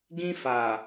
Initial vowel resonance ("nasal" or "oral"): nasal